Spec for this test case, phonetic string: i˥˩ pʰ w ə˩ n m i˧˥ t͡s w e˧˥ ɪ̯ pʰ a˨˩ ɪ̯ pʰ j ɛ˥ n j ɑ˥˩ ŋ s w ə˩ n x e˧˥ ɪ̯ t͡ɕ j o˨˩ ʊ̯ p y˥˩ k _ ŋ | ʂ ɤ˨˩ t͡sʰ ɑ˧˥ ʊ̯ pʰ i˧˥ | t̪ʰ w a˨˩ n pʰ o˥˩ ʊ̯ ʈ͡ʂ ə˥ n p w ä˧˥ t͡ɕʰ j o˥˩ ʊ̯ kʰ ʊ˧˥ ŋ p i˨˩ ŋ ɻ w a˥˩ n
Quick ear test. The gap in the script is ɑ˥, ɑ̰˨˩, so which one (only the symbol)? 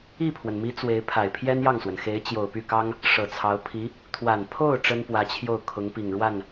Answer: ɑ˥